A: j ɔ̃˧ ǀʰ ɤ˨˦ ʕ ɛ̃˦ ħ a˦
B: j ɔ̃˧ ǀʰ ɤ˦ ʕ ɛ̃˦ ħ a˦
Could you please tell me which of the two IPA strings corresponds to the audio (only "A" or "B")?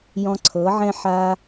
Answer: A